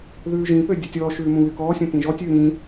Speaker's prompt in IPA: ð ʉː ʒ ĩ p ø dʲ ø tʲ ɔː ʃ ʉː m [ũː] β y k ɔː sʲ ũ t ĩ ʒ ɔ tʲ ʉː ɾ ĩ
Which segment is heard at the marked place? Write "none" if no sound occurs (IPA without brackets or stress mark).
ũ